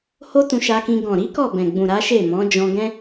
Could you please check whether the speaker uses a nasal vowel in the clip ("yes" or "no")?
yes